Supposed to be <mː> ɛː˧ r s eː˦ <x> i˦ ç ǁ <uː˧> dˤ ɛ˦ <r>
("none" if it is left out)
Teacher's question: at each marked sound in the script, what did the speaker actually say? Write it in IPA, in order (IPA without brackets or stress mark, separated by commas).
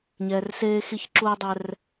ɲ, x, uː˦, r